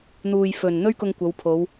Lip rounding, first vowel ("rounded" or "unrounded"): rounded